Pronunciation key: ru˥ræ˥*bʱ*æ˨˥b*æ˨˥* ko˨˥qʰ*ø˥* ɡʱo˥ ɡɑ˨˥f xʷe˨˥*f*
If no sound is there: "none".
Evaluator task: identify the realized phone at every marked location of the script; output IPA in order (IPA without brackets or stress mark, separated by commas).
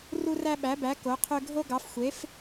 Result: ɓ, æ˨˥, ø˥, f